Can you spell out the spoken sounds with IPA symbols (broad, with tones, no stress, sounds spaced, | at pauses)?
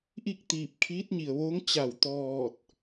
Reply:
ʔ i˥˨ k̚ t̪ iː˧˩ p̚ kʰ iː˧˥ t̚ ɲ i˩ ə̯ ʋ oː˧˥ ŋ t͡ɕ a˧˩ w t̪ ɔː˧˩ t̚